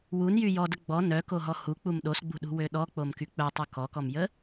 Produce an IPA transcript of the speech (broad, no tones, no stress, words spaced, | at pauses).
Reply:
wunjy jɔdə ɡ͡bɔ nœkoɦɔ huk͡pum ɗosɡ͡bṳɗṳwø ɗɔk͡pomky k͡pœtˤu kɔkɔmjə